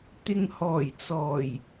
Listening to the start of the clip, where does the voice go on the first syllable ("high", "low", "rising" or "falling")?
low